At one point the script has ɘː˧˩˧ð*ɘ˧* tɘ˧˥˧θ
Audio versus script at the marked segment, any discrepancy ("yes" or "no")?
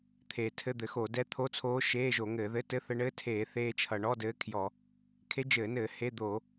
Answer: yes